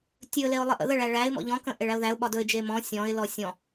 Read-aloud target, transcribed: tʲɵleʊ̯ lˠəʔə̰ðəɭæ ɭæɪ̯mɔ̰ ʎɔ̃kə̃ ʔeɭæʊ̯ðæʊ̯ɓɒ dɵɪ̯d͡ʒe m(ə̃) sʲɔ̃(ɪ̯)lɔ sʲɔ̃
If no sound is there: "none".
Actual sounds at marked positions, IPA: ɔ̃, ɪ̯

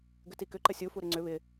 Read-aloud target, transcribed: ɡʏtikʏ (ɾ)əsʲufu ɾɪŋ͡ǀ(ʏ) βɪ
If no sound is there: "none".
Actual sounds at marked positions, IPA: ǃ, ʏ

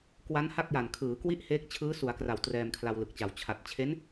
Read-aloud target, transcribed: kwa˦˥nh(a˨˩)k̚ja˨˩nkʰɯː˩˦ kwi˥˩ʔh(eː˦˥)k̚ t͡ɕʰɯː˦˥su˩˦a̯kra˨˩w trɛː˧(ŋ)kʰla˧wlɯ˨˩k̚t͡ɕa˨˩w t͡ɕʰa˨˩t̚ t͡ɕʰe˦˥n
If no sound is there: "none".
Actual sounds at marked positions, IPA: a˥˩, eː˦˥, m

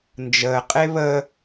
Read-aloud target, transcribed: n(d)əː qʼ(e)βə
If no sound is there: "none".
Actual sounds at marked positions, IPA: d͡ʒ, e

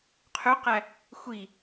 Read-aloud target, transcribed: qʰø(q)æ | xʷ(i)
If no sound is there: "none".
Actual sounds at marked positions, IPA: q, i

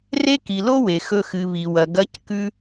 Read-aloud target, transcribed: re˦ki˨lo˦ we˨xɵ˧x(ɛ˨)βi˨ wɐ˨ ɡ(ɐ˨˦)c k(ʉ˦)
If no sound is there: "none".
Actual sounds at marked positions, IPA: ɨ˨, ɐ˨˦, ʉ˦

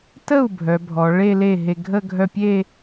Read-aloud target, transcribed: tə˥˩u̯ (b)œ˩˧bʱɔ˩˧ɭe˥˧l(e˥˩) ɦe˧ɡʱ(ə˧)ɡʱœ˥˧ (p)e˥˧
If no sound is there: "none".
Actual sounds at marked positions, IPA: bʱ, e˥˩, ə˥˧, pʲ

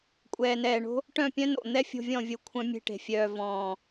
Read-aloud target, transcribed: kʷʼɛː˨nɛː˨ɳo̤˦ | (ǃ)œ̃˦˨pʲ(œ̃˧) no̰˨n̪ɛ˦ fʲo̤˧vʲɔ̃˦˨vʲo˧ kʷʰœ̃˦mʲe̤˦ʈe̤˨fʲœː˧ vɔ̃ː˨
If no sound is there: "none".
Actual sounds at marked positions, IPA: ʈ, œ̃˦

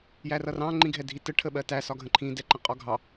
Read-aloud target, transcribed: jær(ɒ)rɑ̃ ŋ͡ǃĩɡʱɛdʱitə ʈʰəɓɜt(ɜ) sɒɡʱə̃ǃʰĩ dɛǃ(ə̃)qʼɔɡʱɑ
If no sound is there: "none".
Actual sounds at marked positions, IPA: ʌ, æ, ə̃

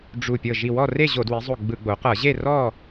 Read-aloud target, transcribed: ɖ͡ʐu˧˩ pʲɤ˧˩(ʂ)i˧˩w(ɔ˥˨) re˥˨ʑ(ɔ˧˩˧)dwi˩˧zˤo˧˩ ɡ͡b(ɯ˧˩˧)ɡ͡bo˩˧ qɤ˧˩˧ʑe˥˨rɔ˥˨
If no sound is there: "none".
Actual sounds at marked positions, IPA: ʒ, ɔ˥˨, o˧˩˧, ɯ˧˩˧

